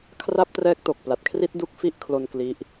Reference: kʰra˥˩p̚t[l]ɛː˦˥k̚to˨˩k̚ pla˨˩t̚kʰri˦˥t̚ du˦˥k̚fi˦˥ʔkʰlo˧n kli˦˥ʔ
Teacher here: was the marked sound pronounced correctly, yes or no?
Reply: no